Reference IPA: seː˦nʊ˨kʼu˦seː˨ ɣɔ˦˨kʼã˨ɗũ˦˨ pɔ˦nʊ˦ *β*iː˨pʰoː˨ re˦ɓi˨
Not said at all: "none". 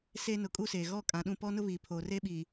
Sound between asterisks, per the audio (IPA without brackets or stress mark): β